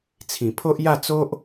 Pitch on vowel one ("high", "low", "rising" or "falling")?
low